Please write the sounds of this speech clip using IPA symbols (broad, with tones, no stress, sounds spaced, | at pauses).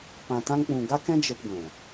p ã˨ t ã˧ ŋ k͡p ũ˨ ɡ a˦ k ɛ̃˦ d͡ʒ ə˧ p ɡʷ ɛ̃˨